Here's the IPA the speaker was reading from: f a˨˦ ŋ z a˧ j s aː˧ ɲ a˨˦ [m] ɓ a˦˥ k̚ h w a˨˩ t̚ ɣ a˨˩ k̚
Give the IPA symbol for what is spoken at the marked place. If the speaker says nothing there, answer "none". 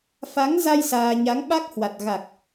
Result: ŋ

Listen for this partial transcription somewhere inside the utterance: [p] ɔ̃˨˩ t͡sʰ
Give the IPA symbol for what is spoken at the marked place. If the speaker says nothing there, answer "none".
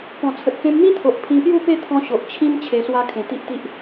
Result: p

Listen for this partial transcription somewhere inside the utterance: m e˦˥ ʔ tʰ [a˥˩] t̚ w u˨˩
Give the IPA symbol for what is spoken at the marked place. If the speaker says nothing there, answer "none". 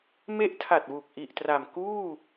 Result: a˨˩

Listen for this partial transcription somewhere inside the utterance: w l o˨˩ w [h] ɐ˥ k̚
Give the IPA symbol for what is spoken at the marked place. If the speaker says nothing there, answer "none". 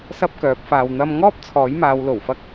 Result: f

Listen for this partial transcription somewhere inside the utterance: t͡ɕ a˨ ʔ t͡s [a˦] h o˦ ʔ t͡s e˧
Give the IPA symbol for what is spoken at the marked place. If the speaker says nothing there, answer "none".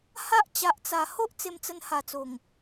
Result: a˨˩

